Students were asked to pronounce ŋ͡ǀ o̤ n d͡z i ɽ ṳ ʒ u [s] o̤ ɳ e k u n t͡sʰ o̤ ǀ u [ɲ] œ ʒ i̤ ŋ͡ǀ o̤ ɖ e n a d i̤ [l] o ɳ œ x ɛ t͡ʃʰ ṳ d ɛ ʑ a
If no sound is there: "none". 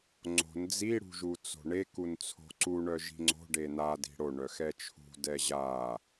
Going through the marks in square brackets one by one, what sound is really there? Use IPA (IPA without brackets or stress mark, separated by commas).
t͡s, ɳ, ɽ